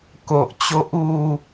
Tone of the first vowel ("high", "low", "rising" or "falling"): low